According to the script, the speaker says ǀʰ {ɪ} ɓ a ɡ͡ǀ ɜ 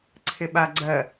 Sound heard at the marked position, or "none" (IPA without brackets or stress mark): ɪ